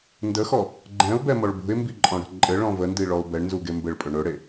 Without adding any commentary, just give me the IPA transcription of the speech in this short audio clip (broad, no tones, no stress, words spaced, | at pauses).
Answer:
ndəxɔ | ɡ͡ǃɛ̃ʊ̯bɛmɔɭ bṳɪ̯mbiǃʼɔ̃ɽə̤ ǃʼɘɭɔ̃ vəndiɭɔʊ̯ bɛɳnzuɡe mbɘɭpʼɵ ɳɵɽe